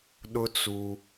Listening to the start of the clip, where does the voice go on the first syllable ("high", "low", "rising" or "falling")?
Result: high